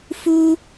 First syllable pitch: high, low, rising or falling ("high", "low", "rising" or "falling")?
high